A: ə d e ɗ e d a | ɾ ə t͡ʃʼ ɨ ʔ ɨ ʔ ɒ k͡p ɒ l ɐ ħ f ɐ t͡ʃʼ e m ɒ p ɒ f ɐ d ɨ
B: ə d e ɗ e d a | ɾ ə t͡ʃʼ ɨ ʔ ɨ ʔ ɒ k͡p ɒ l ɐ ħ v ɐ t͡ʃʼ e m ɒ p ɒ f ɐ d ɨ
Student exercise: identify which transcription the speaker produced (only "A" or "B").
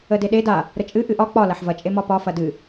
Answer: B